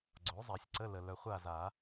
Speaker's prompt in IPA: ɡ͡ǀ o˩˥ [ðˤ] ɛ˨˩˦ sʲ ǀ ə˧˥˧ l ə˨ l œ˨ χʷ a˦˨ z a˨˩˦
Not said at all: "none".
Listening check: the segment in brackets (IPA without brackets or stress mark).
zˤ